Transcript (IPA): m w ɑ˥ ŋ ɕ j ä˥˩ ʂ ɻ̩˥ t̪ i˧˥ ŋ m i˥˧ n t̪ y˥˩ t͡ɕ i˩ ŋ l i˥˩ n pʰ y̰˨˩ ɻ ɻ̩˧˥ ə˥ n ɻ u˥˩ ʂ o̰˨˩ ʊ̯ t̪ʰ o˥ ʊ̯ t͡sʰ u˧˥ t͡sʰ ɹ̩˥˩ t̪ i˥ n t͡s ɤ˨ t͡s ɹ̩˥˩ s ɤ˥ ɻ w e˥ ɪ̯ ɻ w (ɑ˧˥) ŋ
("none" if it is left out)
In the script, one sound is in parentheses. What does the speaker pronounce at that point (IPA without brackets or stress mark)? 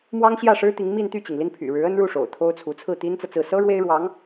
ɑ˧˥